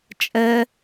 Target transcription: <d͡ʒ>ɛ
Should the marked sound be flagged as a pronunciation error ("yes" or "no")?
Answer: yes